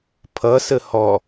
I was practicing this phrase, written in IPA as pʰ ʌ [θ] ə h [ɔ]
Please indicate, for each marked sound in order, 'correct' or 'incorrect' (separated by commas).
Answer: incorrect, correct